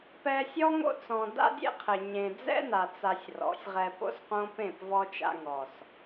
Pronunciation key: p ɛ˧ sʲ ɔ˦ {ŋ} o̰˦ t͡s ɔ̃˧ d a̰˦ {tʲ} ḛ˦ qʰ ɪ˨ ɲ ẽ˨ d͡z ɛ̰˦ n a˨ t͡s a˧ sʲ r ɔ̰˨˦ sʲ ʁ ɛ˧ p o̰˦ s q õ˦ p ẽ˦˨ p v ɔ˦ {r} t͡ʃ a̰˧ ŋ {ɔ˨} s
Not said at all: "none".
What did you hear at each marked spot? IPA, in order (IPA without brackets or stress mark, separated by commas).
ŋ, dʲ, none, ɔ˨